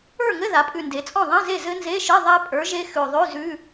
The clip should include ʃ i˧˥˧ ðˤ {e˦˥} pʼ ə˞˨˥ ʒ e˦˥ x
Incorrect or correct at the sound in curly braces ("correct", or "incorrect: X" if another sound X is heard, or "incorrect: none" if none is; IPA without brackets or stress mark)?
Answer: correct